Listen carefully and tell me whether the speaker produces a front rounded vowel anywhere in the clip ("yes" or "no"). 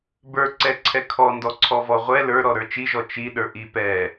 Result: no